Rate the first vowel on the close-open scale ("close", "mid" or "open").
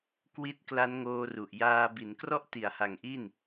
close